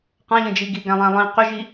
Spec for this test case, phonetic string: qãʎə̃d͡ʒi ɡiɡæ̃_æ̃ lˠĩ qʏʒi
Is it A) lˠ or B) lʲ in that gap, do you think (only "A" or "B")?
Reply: A